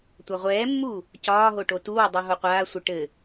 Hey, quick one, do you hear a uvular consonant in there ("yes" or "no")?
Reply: yes